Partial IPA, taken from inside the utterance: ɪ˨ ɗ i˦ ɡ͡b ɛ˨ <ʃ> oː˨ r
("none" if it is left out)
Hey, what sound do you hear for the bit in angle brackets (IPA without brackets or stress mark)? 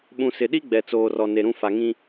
t͡s